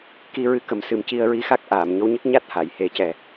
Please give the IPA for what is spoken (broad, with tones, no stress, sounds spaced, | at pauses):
k i˧ ɹ ɨ˧˥ k ə˨˩˦ m s ɨ˨˩ m c i˧ ə̯ ɹ i˧˥ x a˦˥ k̚ ʔ aː˨˩˨ m ɲ o˧˥ w ɲ ə˦˥ k̚ ɲ a˦˥ t̚ h a˨˩˨ j h e˨˩˦ c ɛ˨˩